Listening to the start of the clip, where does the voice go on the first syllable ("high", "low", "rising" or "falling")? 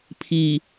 low